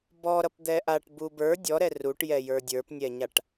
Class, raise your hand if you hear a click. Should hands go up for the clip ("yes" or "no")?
no